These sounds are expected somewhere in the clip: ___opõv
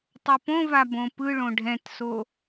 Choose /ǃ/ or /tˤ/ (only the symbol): tˤ